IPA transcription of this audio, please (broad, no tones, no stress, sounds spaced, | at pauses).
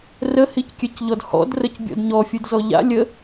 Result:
r ə h i c kʲ ɛ c ʎ ɔ d h ɔ̰ d r ə c bʲ ɔ̰ d ɲ ɔ fʲ ɯ d z ɔ ʎ a̰ lʲ ə